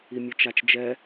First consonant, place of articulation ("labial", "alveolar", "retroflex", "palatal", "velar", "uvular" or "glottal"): labial